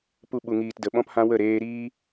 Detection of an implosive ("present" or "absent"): present